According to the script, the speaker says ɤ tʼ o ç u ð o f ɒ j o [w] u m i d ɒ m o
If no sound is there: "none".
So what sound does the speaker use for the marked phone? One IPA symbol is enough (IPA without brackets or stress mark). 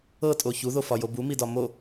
b